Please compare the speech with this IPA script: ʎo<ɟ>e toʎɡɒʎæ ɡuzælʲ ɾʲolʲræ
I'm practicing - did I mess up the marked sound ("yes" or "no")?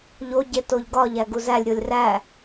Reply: no